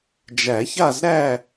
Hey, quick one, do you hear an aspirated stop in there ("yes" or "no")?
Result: no